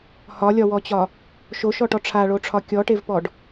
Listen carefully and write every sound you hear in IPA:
h ɒ lʲ ɒ w ɔ t͡ɕ ɒ | ʃ o ʃ ɔ ʈ ɔ ʈ͡ʂʰ a ɭ o ʈ͡ʂʰ ɒ kʲ ɔ ʈ e v p ɔ ɖ

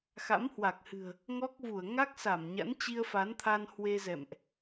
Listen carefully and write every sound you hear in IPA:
x a̰˧˥ m h w a˨˩ k̚ h ɨ̤˨˩ ə̯ | ŋ ɔ˦˥ k̚ v u˧˩ ə̯ ŋ a˦˥ k̚ s a˧˩ m ɲ a̰˧˥ n t͡ɕ i˧ ə̯ f a˨˦ n t̪ʰ a˧ n h w e˧ z ɛ̰˧˨ m ʔ

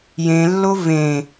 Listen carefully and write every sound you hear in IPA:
j ẽ lː o v ẽ

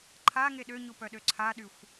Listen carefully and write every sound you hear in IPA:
ǃʰ a ŋ e ɗ ø ɲ u p œ ɗ ø ǀʰ a ɗ y xʷ

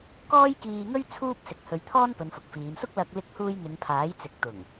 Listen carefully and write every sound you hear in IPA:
k ɔː˥ j k iː˧ ŋ ɵ˥ ɥ t͡sʰ uː˥ p̚ s ɪ˨˥ k̚ h ɵ˨˧ ɥ t̪ʰ ɔː˥ n p ɵ˨˧ n f ʊ˨ k̚ f iː˨˧ m s ʊ˥ k̚ l ɐ˧ k̚ l ɪ˧ k̚ h uː˧ j n̪ ɪ˨˧ ŋ pʰ aː˨˥ j t͡s ɪ˨˥ k̚ t̪ ʊ˨˩ ŋ

